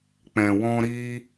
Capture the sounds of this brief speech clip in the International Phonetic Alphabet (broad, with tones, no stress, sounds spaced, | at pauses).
k͡p ɛ̃˨ w ɔ̃˧ ɾ i˦